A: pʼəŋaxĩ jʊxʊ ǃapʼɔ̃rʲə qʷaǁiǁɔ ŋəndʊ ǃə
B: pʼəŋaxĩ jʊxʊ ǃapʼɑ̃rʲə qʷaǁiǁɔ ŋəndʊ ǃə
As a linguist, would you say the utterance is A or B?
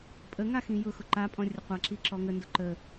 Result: A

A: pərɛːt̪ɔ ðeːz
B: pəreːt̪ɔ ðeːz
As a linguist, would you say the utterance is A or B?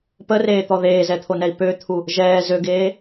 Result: B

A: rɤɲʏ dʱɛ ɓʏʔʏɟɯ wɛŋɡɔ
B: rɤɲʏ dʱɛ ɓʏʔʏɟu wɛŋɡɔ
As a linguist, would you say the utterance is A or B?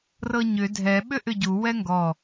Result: B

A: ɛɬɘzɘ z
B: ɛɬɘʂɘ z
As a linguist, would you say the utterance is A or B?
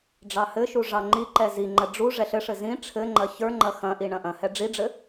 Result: B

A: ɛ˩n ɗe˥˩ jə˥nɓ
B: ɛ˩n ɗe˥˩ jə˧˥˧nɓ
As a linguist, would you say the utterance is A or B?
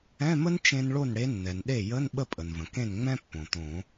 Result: B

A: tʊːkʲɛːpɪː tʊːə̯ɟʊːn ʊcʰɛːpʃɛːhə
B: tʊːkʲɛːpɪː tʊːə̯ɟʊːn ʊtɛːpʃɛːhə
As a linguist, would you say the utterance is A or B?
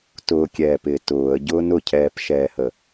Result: A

